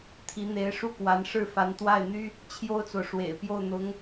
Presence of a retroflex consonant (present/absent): present